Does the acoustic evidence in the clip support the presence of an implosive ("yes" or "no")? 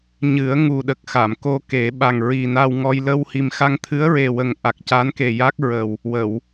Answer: yes